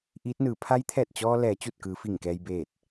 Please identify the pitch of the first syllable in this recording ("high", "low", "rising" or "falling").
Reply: rising